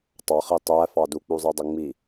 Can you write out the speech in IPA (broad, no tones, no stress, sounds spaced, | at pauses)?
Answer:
tˤ ɑ χ i tˤ æ f ɑ d u k͡p u zˤ i dˤ ə ŋ͡m i